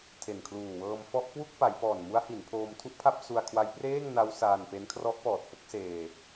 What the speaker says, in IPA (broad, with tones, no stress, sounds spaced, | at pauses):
tʰ e˨˩ n kʰ l uː˨˩ w ɤː˧ m f ɔ˥˩ ʔ k w u˥˩ k̚ p a˩˦ j p ɔː˨˩ n m u˦˥ a̯ h i˩˦ n pʰ oː˧ m tʰ u˥˩ ʔ pʰ a˥˩ p̚ s u˧ a̯ kʰ w a˦˥ j p r eː˥˩ ŋ n a˦˥ w s aː˧ n p e˦˥ n kʰ r ɔ˦˥ ʔ p ɔː˨˩ t̚ f o˥˩ k̚ s eː˧